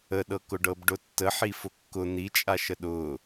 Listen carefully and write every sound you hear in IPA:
ə ɗ ɤ k ʊ ɖ ɤ b ɖ ʊ tː ə ħ i f ʊ kː ʊ n̪ i t͡ʃʼ a ʃ ə ɗ ʊ

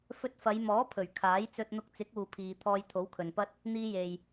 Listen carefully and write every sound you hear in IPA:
f ɵ˧ t̚ f ɐ˨˧ j m ɔː˨˥ pʰ ɵ˨˩ ɥ kʰ aː˨˥ j t͡s ɵ˧ t̚ n̪ ʊ˧ k̚ t͡s ɪ˨˥ k̚ uː˨ pʰ iː˨ t̪ʰ ɔː˧ j t̪ʰ o˨˥ w kʰ ɵ˨ n p ɐ˥ t̚ | n̪ iː˧ j e˨ j

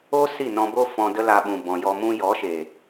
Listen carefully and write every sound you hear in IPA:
o˦ s i˦˨ n ɔ̃˧ b o˦ f ɔ̃˧ d ə˦ l a˧ ɓ ũ˨ b ɔ̃˨ j ɔ˧ m ũ˦ j ɔ˨˦ ʃ e˨

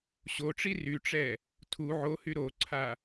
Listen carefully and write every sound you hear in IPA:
ɕ o ʈ͡ʂ i r y ʈ͡ʂ ɛ | tʰ u ʕ o h y ɾ o ǀʰ a

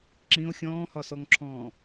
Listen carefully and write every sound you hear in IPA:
ǁ ĩ o̯ xʲ ɔ̃ː h ɒ s ɔ ŋ ǁʰ ɔ̃ː

